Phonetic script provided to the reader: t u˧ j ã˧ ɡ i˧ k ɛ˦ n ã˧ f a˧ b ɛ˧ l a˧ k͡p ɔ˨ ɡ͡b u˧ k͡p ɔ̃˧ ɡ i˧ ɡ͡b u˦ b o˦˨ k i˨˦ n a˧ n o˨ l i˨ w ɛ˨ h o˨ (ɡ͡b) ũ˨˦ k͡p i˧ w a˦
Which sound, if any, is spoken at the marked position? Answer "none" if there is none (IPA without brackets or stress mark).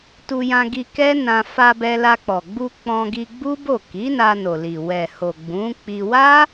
ɡ͡b